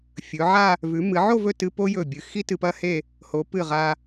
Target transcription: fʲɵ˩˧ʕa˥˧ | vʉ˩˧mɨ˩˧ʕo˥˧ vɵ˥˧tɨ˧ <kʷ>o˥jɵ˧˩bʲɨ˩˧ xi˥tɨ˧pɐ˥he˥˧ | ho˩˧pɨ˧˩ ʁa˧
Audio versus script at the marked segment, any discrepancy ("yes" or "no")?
yes